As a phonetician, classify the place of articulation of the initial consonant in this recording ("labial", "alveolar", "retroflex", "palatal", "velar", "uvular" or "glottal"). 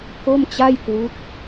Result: velar